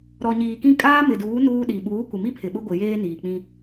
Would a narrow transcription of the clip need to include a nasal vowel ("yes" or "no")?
yes